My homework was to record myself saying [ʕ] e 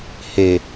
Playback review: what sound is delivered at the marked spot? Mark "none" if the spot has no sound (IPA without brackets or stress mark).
h